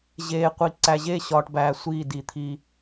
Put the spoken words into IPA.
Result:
ʑ eː˨ qʷ i˨ ǀ æ˨ ʑ eː˦ ɕ ɒː˨ ʈ b æː˨ sʷ iː˦˨ d i˨ t̪ʰ i˦

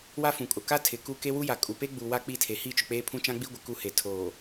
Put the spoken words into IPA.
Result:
w a˦ f ũ˨ kʼ ʊ˨ k a˦ tʰ ɪ˨ k u˦ k e˦ w u˦ j a˨ kʼ u˨ p e˦ ɡ͡b u˨ w a˦ k͡p i˦˨ tʰ e˨ h i˦˨ t͡ʃ ʊ˨ k͡p eː˦ pʰ ũ˦ t͡ʃ ã˦ ɡ͡b i˦ ɡʷ ɪ˨ k u˦ h e˨ tʰ oː˨

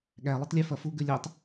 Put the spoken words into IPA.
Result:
ɠ æ lˠ ʉ tˤ lʲ ɛ f ɐ f u ɡ ʉ lʲ ɛ tˤ

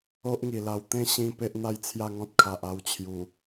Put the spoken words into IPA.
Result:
o˦ ʔ ŋ i˨˩ l a˧ w t̪ ẽ˥˧ ɕ ĩ˧ p e˦ ʔ n̪ a˦ j t͡sʰ j a˥˧ ŋ ɔ̃˦ t̚ kʰ a˨ ʔ a˥˧ w t͡ɕʰ j u˨˩

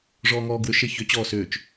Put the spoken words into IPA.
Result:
ʐ ɔː ŋ ɔː ɡ w ʏ ʃ e ç ʏ t͡ɕ ɔː s ʏː t͡ʃ

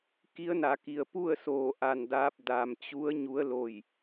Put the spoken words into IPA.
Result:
k i˧˥ ə̯ n a˩˧ k i˩ ə̯ p u˥˨ ə̯ s oː˧˩ ʔ a˧˩ n d aː˧ p̚ d a˩ m t͡ɕ u˧˥ ə̯ ɲ u˧˥ ə̯ l o˧˩ j

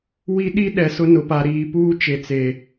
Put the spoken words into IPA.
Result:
w i˦ ɗ i˦ ɗ ɛ˨ s ʊ˦ n ʊ˨ p a˨ ɾ iː˨ p uː˦ t͡ʃ e˨ t͡s e˨

